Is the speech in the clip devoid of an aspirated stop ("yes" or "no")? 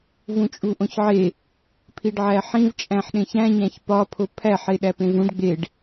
no